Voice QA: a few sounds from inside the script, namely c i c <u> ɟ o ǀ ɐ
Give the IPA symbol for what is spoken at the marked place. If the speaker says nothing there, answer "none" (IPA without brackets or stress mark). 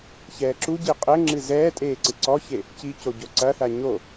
o